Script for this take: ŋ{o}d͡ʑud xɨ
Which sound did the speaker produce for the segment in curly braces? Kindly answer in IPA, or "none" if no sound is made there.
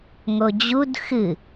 o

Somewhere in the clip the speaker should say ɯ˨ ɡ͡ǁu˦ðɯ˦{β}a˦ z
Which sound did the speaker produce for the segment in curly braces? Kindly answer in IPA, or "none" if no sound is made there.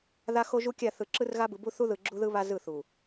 β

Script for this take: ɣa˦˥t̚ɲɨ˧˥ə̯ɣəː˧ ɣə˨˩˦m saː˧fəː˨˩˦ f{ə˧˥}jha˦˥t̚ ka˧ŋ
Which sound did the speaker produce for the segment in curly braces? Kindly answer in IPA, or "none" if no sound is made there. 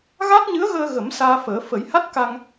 ə˨˩˦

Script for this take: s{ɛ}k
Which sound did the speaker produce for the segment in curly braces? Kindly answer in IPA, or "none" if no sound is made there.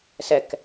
ɛ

